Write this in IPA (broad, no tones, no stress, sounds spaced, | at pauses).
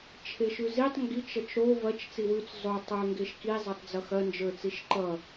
t͡ʃʰ e ʃ ʉ z i tˤ ŋ ɡ i t͡ʃ ʌ t͡ʃ ɾ o v ɐ t͡ʃ t͡s i w ʉ t͡s zˤ o tˤ ə˞ ŋ ɡ e ʃ k i zˤ e tˤ d͡z ʌ x ɐ n d͡ʒ ə˞ t͡s i ʃ ǃ ʌ